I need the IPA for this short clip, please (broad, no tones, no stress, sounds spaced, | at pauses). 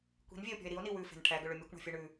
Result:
kʷ i̤ n vʲ e o̯ pʲ ɔ̤ e̯ ɾ i o̯ n i w ʉ f e̤ n ʈʰ æ ɡ ɵ ɭ ɵ mʲ ɵ kʷ ɳ ɔ̤ fʲ ɵ ɳ ʉ